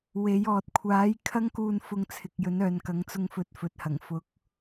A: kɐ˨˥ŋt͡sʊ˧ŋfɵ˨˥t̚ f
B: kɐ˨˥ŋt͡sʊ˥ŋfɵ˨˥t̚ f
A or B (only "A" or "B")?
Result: A